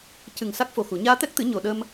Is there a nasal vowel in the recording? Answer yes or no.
no